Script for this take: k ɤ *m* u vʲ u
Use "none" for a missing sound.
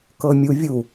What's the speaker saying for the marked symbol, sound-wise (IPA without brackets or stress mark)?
mʲ